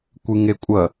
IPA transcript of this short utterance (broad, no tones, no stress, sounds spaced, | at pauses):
kʷ ɨ ŋ e kʷʼ ɐ